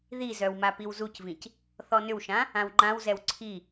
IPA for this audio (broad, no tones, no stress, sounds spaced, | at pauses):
ð i z œ w m a p i w z u c v ĩ c | θ ɔ n ʏ w ʃ ã | ã w ŋ͡ǃ ã w z ɛ w ǀʰ i